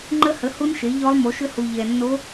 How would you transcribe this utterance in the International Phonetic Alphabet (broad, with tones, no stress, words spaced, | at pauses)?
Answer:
ŋ͡ǃə˦˥hə˨˥hu˦˥nʃe˨˥ ʎɔ˦˥lˠ mo˨˥ʃʏ˦˥hu˧ ʎɛ˧nːo˦˥